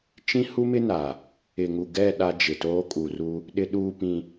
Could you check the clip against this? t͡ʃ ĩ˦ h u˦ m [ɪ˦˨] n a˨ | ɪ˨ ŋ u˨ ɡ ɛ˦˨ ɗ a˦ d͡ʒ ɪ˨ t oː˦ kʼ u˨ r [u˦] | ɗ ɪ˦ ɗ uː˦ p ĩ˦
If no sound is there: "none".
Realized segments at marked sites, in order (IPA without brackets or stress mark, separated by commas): ɪ˦, u˦